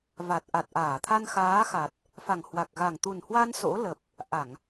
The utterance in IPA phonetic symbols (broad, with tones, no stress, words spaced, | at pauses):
va˨˩t̚ʔa˨˩t̚ʔaː˧˩ t̪ʰa˧nxaː˨˦xa˨˩t̚ | fa˨˩ŋhwa˨˩k̚ɣa˨˩ŋ t̪u˨˩nhwa˧n so̰˧˥lə˨˩p̚ | ʔa˧˩˨ŋ